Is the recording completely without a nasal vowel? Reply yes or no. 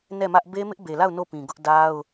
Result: no